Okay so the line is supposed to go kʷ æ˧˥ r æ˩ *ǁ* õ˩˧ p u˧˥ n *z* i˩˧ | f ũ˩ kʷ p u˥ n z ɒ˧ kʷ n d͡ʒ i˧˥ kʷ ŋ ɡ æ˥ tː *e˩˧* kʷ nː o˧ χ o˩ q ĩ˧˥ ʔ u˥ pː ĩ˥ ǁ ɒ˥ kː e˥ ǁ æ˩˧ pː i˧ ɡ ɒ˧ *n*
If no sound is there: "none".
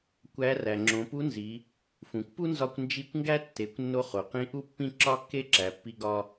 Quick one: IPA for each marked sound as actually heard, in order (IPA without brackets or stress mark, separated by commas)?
ŋ͡ǁ, z, e˩˧, none